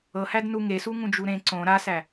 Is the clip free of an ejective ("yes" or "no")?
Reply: yes